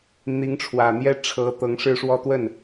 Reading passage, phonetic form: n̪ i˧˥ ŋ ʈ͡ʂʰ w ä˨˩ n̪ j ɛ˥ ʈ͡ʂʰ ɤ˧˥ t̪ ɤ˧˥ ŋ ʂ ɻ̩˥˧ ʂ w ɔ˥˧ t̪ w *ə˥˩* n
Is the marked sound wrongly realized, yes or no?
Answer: no